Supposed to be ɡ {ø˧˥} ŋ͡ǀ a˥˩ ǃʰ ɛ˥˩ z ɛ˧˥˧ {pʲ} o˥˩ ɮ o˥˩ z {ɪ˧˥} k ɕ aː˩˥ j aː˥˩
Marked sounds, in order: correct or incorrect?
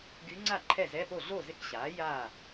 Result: incorrect: y˧˥, incorrect: p, correct

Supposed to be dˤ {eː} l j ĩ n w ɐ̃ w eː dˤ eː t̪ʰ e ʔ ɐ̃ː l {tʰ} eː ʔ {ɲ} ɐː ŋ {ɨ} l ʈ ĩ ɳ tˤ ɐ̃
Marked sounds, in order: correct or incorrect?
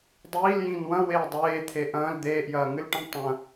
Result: incorrect: iː, incorrect: d̪, incorrect: j, correct

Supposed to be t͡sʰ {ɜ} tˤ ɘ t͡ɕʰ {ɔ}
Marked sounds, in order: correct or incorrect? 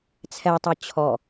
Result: incorrect: ɛ, correct

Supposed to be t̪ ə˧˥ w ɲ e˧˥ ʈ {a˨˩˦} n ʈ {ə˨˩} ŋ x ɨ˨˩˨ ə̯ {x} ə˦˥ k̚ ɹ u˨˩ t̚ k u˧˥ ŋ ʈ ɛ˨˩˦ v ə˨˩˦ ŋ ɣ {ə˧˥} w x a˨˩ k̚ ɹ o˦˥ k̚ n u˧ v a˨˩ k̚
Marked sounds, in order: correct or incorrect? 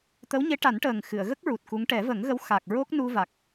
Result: correct, incorrect: əː˨˩, incorrect: ɣ, correct

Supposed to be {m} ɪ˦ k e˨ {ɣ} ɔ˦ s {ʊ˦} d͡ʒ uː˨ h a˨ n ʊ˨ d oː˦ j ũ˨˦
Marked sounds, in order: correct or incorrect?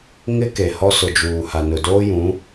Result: incorrect: ŋ, incorrect: h, incorrect: ʊ˨

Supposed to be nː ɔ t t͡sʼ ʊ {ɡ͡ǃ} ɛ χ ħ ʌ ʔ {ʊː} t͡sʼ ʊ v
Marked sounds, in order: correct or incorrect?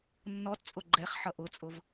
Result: correct, incorrect: ʊ

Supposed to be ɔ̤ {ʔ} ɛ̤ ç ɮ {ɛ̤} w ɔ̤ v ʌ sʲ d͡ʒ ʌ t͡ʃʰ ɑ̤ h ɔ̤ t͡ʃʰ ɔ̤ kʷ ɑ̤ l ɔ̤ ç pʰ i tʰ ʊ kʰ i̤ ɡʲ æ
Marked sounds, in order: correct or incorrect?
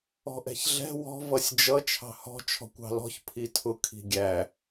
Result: correct, correct

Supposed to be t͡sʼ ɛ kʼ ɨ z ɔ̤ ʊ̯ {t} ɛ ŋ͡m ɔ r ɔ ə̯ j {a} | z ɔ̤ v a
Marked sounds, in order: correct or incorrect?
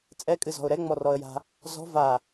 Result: incorrect: ɾ, incorrect: a̤

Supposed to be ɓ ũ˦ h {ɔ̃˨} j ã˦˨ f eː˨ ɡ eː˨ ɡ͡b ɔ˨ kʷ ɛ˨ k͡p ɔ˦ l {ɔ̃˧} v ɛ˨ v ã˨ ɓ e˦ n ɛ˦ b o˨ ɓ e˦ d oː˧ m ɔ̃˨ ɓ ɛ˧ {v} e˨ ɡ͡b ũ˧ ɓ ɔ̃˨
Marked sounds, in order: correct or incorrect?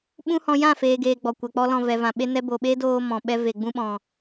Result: incorrect: ɔ̃˧, correct, correct

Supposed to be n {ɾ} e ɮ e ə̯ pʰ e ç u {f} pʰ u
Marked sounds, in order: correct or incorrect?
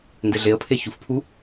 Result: incorrect: d, correct

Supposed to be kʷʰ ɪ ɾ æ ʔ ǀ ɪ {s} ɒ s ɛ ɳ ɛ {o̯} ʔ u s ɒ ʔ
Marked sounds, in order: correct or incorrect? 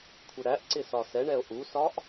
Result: correct, correct

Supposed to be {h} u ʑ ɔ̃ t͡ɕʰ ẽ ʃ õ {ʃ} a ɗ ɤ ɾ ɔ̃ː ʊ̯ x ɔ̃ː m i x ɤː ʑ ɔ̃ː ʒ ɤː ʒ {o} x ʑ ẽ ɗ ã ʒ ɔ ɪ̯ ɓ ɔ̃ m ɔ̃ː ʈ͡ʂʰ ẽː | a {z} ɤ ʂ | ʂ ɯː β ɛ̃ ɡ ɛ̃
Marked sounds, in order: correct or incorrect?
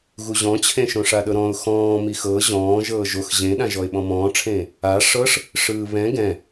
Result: incorrect: ɣ, incorrect: ʂ, correct, incorrect: ʂ

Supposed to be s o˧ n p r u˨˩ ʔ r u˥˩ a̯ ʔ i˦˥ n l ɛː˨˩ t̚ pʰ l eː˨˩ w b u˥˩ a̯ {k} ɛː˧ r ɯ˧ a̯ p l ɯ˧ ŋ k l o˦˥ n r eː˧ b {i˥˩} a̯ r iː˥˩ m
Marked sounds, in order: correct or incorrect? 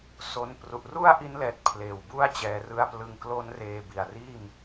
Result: incorrect: t͡ɕ, incorrect: i˨˩

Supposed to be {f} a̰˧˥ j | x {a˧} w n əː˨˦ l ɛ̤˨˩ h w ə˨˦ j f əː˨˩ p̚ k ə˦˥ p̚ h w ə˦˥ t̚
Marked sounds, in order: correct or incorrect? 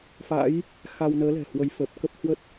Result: correct, correct

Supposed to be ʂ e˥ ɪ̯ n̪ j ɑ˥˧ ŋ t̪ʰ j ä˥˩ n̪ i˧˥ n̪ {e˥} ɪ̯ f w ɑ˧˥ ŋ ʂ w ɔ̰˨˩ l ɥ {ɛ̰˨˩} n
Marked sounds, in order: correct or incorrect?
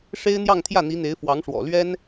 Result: incorrect: e˧˥, incorrect: ɛ˥

